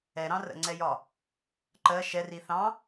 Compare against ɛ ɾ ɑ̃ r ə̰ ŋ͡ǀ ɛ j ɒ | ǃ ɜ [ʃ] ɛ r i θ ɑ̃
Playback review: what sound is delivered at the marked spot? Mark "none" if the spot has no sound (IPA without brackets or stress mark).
ʃ